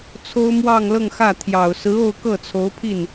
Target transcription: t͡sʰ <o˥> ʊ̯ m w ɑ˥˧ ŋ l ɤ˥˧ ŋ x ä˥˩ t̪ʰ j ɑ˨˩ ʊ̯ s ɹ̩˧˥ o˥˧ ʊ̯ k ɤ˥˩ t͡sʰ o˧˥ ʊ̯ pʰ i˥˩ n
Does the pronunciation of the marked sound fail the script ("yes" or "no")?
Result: no